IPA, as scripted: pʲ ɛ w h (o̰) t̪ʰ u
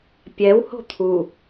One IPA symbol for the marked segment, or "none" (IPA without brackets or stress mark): o̤